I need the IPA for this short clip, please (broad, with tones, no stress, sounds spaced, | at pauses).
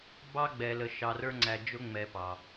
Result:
b ɑ˥ ɡ͡b ɛ˨ l ə˨ ʃ ɑ˨ r ə˞˦ ŋ͡ǀ æ˨ d͡ʒ ʊ˥ ŋ͡m ɛ˨ p ɑ˩